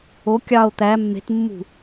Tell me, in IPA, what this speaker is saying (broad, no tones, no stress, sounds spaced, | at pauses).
o kʲ ɑ o̯ t̪ æ mː e̤ t mː ṳ